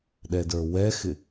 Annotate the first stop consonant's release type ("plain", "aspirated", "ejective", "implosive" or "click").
implosive